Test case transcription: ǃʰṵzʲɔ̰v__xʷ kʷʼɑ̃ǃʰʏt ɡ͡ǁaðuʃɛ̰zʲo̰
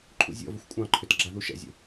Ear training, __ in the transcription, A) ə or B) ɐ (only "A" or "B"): A